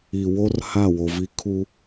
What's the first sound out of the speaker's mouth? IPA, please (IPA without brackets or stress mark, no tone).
i